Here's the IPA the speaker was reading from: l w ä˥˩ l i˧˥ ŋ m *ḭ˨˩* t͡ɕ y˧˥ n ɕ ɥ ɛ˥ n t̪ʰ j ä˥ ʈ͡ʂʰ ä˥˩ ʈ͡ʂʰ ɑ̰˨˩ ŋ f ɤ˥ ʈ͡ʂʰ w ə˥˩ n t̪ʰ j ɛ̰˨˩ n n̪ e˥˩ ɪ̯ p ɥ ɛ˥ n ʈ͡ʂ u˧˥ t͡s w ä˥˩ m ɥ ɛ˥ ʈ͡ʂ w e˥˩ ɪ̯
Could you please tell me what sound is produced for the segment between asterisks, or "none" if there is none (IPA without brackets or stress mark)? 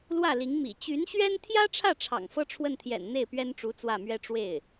ḭ˨˩